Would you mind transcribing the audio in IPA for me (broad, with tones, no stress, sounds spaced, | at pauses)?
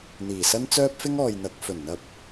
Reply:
n̪ iː˨˩ s ɐ˥ n t͡s œː˥ p̚ f ɪ˥ ŋ ɔː˨ j n̪ ɐ˨˥ k̚ f ɵ˨˩ n n̪ ɐ˧ p̚